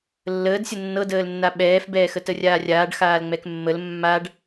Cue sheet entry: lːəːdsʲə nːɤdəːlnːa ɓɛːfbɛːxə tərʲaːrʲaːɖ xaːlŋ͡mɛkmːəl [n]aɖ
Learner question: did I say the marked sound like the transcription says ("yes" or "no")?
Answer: no